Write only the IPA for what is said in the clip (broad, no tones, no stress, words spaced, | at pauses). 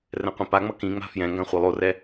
rɛ̃qʷĩpaŋ͡mʌ kĩŋ͡ma̤ fjɛ̃ŋɡã χʷelˠorɛ